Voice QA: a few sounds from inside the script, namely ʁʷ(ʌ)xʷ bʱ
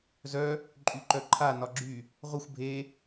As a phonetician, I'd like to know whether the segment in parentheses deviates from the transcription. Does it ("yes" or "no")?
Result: no